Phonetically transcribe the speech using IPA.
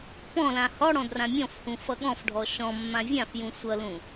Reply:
pɔ̃lã hɔɽɔ̃ drãmʲɔ̃fhũ fʌɠɔ̃fɖʱɔ ʃɔ̃ mːãvʲãfjũ sʷʌlũ

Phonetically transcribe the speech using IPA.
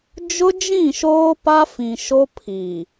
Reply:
d͡ʒʊ˦d͡ʒĩ˦˨ʃoː˦ pa˦fĩ˨ʃo˦ pʰi˨

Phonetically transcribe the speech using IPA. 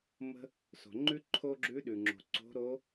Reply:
mə̤˥ | so̤˩ŋ͡ǃʉ˥ ǃʰo˥ɡ͡ǁʉ˧˥ ɗʉ˩ŋ͡ǁo̤˩ ǀo̤˧˥ɾo˧˥

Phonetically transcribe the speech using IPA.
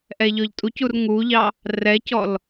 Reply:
ʔɛʎɔʎtʼucur ŋuʎɑ | rɛcɔl

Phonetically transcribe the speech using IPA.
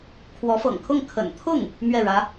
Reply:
kʰwɔ˧˥fɤ̰˨˩ŋkʰʊ˥˩ŋ kʰə̰˨˩nt̪ʰʊ˥˩ŋ | mɥɛ˥˩ɻä˧˥

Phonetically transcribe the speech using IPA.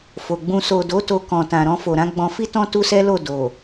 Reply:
fo˨ɡ͡bũ˧ so˨do˨˦ to˧kɔ̃˨tã˨ɾɔ̃˧ fo˨ɾã˨˦ɡ͡bɔ̃˧ fi˦tɔ̃˦ tu˦sɛ˦lo˦˨ do˨

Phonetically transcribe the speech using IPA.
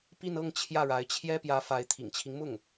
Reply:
pi˥˧nɤ˥˧ŋ t͡ɕʰjä˥˩ɻa˧˥ɪ̯t͡ɕʰjɛ˥ pjä˧˥fa˧˥ɪ̯ t̪ʰḭ˨˩ŋt͡ɕʰi˦ŋmʊ˥˩ŋ

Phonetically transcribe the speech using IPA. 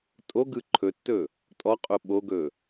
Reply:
tʼoɡɯ ǃʰɵtːɵ | tʼɔqʼo ɓoɡɵ

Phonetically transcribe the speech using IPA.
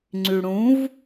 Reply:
ŋ͡ǀyɽũv

